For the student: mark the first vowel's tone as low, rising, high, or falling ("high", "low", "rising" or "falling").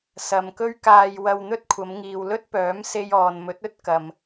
low